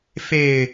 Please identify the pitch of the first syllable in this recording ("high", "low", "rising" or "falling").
low